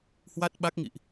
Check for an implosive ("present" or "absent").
present